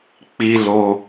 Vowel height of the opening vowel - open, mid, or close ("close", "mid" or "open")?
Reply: close